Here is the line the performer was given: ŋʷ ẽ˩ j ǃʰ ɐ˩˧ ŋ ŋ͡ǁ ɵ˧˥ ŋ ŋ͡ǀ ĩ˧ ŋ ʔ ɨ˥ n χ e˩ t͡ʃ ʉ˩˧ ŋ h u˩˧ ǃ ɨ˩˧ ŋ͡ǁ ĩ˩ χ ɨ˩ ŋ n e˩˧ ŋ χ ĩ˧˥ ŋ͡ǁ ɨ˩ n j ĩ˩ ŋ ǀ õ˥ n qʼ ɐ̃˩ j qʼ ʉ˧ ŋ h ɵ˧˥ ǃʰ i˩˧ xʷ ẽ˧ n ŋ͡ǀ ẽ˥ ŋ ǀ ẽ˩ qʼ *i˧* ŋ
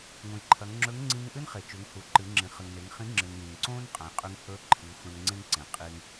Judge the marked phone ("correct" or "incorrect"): correct